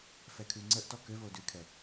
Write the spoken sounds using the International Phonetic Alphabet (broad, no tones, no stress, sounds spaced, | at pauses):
f ɛ kʰ ʉ ŋ͡ǀ ə ʔ t ɔ k ø v o d ʉ kʰ ɛ